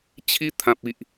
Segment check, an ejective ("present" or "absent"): absent